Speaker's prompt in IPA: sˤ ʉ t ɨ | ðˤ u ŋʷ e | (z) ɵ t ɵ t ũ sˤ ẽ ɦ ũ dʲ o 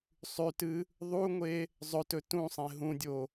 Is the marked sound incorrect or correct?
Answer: incorrect